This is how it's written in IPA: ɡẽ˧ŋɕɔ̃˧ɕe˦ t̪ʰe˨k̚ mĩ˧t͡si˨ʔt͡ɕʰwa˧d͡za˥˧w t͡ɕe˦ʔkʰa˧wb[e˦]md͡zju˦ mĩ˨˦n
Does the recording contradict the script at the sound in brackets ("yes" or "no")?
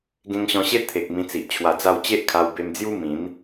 yes